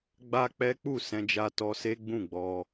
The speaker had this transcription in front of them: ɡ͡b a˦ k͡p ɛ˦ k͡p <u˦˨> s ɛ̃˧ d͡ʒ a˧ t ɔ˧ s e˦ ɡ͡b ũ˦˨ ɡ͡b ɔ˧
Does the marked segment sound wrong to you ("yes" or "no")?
no